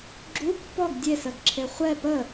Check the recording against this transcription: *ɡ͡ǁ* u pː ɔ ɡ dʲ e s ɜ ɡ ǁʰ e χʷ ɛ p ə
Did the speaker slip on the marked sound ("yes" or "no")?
no